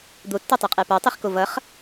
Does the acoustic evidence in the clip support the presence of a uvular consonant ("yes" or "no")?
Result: yes